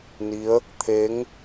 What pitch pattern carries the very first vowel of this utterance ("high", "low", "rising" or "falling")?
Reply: rising